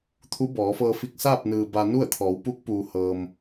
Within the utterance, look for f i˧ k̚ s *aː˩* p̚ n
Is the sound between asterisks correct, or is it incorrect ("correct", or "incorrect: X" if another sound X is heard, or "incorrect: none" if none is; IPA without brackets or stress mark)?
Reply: incorrect: aː˥˨